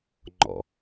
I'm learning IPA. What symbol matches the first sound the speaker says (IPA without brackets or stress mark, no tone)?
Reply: ŋ͡ǃ